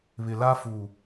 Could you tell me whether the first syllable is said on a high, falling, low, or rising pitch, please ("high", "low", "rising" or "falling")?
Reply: low